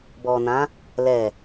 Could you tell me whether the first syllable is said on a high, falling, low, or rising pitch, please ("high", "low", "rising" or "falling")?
low